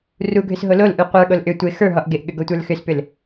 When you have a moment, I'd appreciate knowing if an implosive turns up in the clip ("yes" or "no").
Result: yes